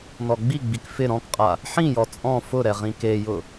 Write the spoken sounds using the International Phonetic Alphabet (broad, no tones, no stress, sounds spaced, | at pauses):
n ɔ ɡ͡b i ɡ͡b i k f ɪ ɾ ɔ̃ k qʼ a | ħ ĩ j ɔ t͡sʼ ɔ̃ f ʊ ɾ ɛ ʁ ĩ k e j ʊ